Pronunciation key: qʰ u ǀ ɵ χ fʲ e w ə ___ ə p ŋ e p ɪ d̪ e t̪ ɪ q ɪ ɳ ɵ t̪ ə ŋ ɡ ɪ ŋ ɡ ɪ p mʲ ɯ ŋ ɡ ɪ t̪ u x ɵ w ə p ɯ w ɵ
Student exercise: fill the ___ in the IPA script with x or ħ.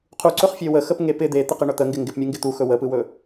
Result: x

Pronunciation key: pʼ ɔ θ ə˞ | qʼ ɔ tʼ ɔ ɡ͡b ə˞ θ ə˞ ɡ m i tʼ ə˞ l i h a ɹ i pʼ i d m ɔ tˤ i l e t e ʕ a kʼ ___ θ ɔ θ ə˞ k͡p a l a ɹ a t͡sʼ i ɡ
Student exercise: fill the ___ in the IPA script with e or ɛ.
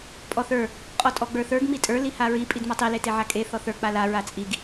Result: e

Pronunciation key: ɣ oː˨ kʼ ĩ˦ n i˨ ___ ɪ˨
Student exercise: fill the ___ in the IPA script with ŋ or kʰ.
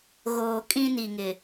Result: ŋ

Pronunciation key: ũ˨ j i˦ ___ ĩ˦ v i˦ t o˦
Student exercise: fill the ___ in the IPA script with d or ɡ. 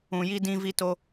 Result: d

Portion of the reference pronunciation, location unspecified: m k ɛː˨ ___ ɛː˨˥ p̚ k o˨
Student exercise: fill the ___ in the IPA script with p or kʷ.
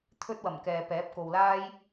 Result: p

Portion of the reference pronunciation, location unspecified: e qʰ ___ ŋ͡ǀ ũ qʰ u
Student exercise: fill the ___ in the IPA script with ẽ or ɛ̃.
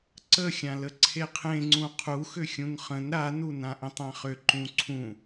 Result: ẽ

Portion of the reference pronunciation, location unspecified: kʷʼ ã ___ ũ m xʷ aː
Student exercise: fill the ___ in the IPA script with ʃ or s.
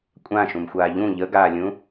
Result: ʃ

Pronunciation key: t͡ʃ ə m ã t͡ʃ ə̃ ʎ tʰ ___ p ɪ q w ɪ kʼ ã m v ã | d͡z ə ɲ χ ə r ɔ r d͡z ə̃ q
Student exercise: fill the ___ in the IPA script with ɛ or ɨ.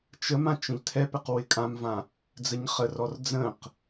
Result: ɛ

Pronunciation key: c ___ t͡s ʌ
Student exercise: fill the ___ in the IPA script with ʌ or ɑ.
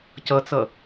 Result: ʌ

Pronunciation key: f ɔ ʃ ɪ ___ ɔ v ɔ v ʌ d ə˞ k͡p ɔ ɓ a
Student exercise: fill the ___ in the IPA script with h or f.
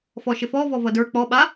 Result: f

